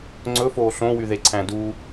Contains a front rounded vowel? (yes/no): yes